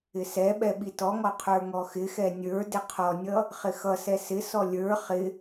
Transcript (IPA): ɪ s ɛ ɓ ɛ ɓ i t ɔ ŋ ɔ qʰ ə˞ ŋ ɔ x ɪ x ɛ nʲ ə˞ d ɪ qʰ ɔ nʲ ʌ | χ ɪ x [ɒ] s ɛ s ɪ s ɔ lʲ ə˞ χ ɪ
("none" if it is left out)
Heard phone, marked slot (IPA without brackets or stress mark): ʌ